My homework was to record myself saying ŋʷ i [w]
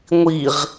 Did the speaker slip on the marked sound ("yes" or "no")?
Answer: yes